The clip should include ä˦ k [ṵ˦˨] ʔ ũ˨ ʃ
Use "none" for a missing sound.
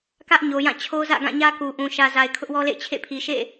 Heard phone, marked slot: u˨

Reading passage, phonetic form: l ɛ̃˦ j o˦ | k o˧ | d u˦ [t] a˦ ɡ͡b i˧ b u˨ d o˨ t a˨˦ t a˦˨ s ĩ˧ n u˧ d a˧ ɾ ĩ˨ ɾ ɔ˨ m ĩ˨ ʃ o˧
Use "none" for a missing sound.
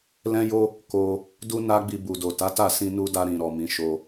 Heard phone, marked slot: n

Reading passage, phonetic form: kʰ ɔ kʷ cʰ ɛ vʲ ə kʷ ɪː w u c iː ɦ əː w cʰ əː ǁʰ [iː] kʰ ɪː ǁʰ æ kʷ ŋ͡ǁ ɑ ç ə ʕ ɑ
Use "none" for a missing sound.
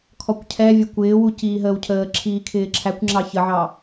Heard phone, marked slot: iː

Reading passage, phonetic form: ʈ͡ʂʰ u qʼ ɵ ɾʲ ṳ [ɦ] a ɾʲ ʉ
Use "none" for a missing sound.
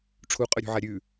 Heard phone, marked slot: ʕ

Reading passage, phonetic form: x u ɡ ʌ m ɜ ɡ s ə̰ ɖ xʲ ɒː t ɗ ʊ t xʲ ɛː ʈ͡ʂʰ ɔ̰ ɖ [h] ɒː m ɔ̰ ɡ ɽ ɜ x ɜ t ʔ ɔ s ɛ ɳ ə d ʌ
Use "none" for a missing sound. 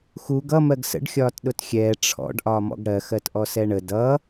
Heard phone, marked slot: ʔ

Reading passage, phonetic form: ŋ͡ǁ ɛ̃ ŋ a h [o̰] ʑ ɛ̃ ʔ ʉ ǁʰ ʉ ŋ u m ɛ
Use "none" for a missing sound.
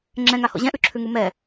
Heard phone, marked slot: o̰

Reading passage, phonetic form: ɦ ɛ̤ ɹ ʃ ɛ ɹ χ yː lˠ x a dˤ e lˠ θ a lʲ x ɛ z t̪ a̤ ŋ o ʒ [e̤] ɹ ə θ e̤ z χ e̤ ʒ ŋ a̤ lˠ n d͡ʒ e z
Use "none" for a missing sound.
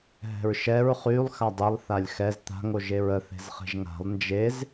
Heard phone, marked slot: e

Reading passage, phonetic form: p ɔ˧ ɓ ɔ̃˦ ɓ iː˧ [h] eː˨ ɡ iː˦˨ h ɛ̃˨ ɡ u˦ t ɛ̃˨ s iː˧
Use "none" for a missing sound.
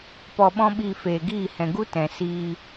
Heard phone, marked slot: f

